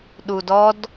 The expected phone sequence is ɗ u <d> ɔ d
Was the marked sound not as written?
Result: no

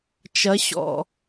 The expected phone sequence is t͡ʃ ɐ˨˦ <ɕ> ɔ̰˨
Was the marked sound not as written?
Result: no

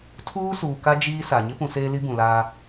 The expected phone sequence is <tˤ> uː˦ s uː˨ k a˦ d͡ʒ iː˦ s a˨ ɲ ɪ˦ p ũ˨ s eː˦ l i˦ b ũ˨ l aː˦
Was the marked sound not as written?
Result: yes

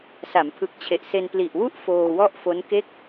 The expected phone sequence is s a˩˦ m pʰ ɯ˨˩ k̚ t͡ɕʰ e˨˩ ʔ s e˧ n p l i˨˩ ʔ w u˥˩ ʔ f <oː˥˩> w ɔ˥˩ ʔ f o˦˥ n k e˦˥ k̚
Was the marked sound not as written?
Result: yes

